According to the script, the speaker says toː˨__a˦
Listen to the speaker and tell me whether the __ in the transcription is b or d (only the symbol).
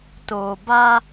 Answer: b